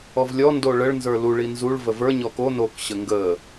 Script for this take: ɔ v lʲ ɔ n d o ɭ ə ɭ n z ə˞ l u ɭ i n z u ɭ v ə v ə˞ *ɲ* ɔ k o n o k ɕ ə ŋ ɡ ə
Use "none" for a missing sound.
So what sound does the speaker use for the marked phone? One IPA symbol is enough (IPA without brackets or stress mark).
ɲ